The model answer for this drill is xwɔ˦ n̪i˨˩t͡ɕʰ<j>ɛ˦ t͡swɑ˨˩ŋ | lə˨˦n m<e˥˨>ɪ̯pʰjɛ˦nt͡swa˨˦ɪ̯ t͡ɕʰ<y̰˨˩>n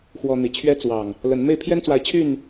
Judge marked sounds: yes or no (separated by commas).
no, yes, no